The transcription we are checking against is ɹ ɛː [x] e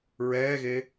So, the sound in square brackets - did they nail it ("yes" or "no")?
no